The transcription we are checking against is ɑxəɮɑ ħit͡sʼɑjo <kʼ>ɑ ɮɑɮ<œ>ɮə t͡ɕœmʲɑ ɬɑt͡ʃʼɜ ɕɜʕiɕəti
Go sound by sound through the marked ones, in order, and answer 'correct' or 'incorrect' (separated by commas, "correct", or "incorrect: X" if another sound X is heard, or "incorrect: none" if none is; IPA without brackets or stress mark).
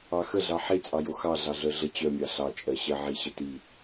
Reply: incorrect: x, correct